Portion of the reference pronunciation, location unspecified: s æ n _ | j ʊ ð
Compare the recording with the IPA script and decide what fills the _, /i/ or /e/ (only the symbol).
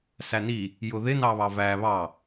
i